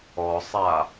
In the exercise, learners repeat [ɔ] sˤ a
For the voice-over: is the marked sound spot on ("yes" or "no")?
yes